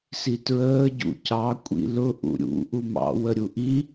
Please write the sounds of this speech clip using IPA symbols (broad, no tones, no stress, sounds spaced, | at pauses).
s i t ɹ əː ɟ ṵ c ɑ kʷʼ ḭ l ʊ ʔ ṵ ɾʲ ṵ ʔ u m ɑ̰ w ə ɾʲ u ʔ i